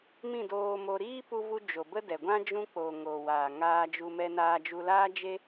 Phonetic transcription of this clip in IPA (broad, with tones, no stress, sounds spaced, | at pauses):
m ĩ˦˨ d oː˧ m o˧ ɾ iː˦ p u˧ v u˧ d͡ʒ o˨ b ə˦ d ɛ˨ ɡʷ ã˦ d͡ʒ ũ˦ k͡p o˨ ŋ o˨ w aː˨ ŋ aː˧ d͡ʒ u˧ m ɛ˧ n aː˧ d͡ʒ u˧ l aː˦ d͡ʒ e˦